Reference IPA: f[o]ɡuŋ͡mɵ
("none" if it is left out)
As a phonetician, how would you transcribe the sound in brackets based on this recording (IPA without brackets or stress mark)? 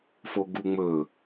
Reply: o